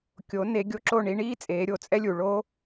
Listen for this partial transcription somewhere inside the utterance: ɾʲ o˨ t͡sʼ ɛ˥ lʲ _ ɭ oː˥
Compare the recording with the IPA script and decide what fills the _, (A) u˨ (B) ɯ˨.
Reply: A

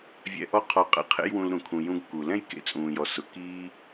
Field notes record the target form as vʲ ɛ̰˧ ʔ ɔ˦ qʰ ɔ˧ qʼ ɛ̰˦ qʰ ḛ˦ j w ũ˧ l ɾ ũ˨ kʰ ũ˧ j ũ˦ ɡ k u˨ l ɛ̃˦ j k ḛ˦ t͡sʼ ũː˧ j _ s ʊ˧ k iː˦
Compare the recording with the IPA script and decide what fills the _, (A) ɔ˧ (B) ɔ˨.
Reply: A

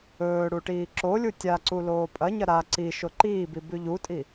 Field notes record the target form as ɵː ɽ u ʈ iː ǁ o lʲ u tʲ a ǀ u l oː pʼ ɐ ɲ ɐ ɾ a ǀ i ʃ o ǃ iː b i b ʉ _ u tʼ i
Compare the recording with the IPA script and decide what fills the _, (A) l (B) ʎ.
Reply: B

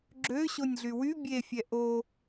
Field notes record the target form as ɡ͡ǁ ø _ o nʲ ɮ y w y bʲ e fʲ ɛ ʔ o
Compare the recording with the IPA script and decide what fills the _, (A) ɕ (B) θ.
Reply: A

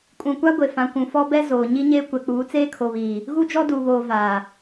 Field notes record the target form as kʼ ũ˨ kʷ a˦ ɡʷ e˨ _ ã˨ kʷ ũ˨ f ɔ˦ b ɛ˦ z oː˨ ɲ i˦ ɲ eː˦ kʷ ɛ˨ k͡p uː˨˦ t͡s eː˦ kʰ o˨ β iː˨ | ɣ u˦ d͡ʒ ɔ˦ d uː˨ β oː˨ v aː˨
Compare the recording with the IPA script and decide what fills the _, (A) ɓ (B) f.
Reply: B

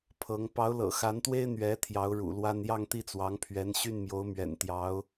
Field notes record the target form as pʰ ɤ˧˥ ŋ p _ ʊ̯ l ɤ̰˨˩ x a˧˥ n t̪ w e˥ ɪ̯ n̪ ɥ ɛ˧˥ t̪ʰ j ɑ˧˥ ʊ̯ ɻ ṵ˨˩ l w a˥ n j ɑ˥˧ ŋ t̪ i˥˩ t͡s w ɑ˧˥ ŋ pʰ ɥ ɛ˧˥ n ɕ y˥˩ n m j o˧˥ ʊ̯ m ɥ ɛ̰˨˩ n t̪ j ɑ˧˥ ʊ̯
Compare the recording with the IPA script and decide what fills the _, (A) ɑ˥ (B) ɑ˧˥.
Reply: B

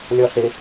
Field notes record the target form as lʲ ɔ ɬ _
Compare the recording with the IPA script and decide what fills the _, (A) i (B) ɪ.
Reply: B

